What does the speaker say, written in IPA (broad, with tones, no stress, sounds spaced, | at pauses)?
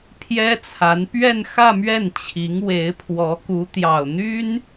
pʰ j ɛ˥ t͡sʰ a˧˥ n p ɥ ɛ˥˧ n x ä˥˧ m ɥ ɛ˥˩ n t͡ɕʰ i˧˥ ŋ w e˧˥ ɪ̯ pʰ w ɔ˧˥ k u˧˥ t̪ j ɑ˨˩ ʊ̯ n̪ y˥ n